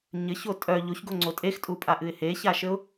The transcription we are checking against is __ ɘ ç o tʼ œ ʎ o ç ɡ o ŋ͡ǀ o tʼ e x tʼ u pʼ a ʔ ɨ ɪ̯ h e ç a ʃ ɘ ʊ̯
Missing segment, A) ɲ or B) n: A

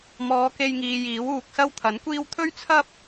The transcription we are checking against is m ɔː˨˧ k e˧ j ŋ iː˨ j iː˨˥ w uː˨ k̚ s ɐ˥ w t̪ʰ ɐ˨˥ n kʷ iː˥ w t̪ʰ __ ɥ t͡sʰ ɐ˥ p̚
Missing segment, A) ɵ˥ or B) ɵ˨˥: A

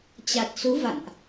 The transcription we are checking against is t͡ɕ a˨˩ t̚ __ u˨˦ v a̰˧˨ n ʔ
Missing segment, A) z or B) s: B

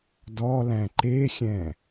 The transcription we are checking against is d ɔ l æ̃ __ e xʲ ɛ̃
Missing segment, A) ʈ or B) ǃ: B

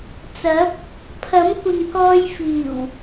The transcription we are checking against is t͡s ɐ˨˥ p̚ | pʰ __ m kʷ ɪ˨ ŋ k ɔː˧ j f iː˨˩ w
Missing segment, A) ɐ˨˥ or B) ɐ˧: A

